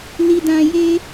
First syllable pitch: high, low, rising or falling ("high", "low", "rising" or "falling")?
low